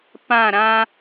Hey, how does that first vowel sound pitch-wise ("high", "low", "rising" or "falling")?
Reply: falling